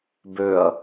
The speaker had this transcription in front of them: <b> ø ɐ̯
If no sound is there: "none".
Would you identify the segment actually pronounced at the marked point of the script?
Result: b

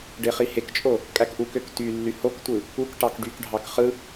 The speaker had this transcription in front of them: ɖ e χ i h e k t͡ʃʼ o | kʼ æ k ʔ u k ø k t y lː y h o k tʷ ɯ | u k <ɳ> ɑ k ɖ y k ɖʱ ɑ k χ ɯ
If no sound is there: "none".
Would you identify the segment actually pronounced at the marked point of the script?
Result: ʈ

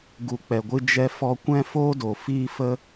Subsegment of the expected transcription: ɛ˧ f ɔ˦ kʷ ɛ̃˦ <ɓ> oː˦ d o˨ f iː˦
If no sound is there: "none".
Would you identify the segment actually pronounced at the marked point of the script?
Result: f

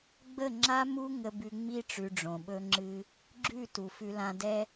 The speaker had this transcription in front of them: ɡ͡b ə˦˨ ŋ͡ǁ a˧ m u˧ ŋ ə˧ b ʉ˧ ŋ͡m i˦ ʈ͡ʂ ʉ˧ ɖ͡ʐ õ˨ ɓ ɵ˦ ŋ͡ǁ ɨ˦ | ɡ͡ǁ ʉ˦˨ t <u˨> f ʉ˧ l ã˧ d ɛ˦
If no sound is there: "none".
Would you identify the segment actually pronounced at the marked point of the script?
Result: u˨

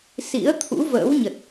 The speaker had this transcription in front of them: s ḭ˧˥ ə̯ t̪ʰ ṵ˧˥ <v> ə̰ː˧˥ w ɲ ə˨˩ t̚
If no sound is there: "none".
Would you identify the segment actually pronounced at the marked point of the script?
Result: v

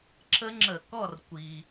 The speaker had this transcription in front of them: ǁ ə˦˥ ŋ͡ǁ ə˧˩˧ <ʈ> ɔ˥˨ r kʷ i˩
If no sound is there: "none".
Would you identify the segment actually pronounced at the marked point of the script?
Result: k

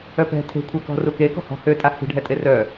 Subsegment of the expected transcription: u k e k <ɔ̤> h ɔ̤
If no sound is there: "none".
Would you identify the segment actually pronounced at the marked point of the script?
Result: ɔ̤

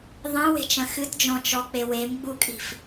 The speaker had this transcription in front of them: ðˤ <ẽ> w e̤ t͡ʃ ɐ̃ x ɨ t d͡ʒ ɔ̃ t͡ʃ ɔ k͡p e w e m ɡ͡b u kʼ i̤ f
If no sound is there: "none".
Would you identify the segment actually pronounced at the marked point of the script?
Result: ẽ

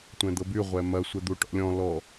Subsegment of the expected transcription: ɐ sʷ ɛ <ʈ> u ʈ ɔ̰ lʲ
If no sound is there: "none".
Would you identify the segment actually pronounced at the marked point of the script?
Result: d̪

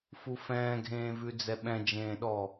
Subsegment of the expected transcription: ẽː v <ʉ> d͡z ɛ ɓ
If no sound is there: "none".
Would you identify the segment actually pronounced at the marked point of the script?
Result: ʉ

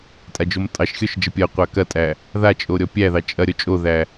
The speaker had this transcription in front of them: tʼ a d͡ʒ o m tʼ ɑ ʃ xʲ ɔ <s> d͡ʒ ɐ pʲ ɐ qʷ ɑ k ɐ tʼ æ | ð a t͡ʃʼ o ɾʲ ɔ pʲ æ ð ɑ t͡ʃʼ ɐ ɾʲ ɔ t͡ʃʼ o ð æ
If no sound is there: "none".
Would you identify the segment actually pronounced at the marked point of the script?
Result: ʃ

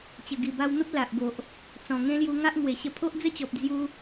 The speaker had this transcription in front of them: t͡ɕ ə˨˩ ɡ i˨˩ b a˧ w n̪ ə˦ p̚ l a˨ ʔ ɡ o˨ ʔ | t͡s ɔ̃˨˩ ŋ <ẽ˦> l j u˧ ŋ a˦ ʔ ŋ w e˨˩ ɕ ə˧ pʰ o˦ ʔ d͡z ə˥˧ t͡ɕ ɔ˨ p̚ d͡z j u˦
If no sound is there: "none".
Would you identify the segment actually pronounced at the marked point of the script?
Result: ẽ˦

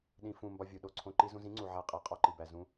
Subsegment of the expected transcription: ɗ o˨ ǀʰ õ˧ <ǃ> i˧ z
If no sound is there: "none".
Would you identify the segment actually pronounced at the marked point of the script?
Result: ǃ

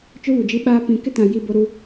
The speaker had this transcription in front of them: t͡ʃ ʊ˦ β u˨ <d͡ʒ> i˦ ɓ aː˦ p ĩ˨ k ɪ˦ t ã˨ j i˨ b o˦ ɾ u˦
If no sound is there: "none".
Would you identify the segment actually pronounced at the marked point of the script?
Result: d͡ʒ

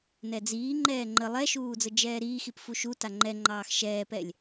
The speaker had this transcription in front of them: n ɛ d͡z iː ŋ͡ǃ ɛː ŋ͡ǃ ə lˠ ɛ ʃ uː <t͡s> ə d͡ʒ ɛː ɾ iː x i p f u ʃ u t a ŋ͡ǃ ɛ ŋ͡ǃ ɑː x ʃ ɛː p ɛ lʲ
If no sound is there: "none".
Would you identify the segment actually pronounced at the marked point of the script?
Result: d͡z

